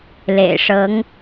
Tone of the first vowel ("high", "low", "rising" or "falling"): low